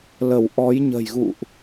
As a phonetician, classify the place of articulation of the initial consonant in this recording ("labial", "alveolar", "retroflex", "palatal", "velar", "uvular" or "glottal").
alveolar